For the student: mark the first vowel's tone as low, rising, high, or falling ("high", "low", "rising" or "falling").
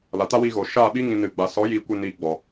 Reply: low